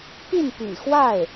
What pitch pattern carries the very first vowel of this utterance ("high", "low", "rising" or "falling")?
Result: falling